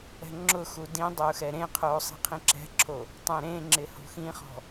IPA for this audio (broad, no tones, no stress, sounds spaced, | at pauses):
ɛ̤ ŋ͡ǁ ʊ x u d ĩ dˤ ʊː x ɛ ɾ ẽ qʰ oː sˤ i̤ qʰ ĩ ǁ ɛ̤ ǁʰ o | tˤ ẽ ɾ ẽ ŋ͡ǁ ɪ h o̤ x ĩ χ ɔ̤